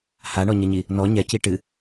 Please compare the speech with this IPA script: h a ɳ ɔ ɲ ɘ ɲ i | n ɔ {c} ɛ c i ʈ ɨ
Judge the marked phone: incorrect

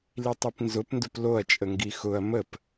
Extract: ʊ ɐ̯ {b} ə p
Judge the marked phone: incorrect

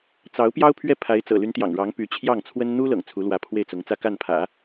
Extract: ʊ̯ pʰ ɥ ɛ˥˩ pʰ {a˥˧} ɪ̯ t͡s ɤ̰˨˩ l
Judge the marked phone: incorrect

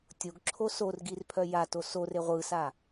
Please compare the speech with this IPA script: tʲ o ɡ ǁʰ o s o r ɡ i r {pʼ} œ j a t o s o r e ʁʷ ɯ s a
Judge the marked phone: incorrect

